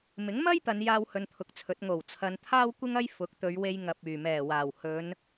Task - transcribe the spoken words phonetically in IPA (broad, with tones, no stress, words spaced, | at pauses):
mɪ˨˥ŋmɐ˥j t̪ɐ˨˧njaː˧whɵ˨n t̪ʰʊ˨k̚t͡sʰɵ˨˥t̚ ŋo˨˩w t͡sʰɐ˨˧nt̪ʰaː˥wkʷɪ˥ŋɐ˥j fʊ˨˥k̚t̪ɵ˨˧ɥwe˧j ŋɐ˨p̚ yː˨˩mɛː˨˩waː˨˩w hɵ˨˧n